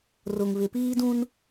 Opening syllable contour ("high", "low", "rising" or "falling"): low